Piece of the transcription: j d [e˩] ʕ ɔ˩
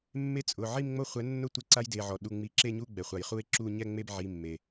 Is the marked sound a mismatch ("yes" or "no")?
yes